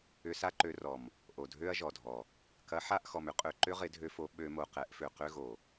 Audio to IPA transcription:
ʏ˧ s a˦ ǃ ø˧ r ɔ˨ m | ʔ o˨ dʱ ø˦ ɐ̯ ʒ ɔ˨ dʱ ɔ˨ | k ɐ˨˦ ħ a˦˨ ʔ x ɔ˨ m ʏ˦ qʼ ø˨ ǃ ʏ˦ ʁ ɪ˨˦ dʱ ø˧ f o˨˦ ɓ ø˧ m o˨ q ɛ˨˦ ʔ f ø˨ q ø˦ ɣ o˨

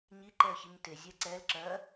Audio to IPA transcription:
ɲ i ǃ ɛ ə̯ ç i ɲ t e zʲ ɛ ǀ ɛ l ǁ ɜ

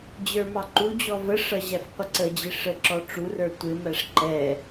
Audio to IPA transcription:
d͡ʑ ə˞ m ɑ ǃ u d͡ʑ ɔ v ə ʂ ʌ ʑ æ f qʷ ə ǀ ə d͡ʑ ɪ ʂ ə ǁ ɔ ʈ͡ʂ u r ə˞ tʷ ɪ m æ ʂ ǃ ɛ

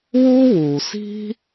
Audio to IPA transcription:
w u˥ w u˩ s i̤˥

